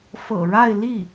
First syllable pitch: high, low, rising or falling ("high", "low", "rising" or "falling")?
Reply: low